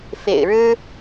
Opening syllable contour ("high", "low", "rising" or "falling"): low